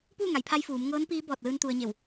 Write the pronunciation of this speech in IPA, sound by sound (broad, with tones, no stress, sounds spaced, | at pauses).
p uː˥˨ ŋ a˩˧ j pʰ a˧ j f uː˩˧ m ŋ ɤː˧˥ n p iː˧˥ b ɔː˧˩ t̚ l ɯː˧ n t̪ u˧ ə̯ ɲ e˧˩ w